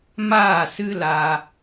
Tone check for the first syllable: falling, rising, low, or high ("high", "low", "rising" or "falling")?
falling